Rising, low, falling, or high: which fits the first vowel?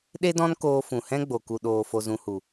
high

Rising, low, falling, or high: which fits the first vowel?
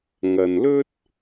low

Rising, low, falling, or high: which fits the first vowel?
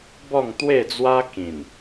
falling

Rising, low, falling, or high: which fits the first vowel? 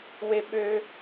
high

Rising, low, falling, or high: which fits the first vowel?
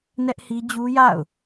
high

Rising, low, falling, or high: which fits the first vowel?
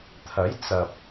rising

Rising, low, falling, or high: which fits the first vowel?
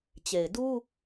low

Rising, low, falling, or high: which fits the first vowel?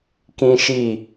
high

